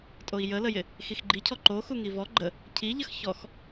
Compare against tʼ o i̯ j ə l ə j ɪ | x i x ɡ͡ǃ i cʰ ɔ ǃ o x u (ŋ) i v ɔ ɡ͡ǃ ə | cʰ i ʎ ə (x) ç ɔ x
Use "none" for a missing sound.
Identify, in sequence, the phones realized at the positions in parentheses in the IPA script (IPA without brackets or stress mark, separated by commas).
ŋ, x